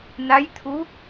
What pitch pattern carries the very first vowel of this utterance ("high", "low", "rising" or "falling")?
rising